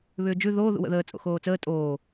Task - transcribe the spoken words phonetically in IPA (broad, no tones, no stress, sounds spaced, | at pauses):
β ʏː d͡ʒ ʉ ð oː ð ṵ w ə̰ ð əː t͡sʼ o̰ x oː t͡s əː tʼ oː